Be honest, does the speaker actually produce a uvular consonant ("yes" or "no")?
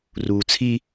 no